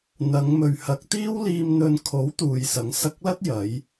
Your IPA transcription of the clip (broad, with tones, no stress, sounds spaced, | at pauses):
n̪ ɐ˨˧ ŋ m ɵ˨ ɥ h ɐ˨˥ k̚ t̪ iː˥ w l iː˧ m n̪ ɵ˧ n kʰ o˨˥ w t̪ uː˨ j s ɐ˨˥ ŋ s ɐ˧ k̚ l ɐ˥ t̚ j ɐ˨˧ j